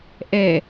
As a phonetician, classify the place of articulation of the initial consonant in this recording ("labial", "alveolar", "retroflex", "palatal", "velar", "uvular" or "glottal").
glottal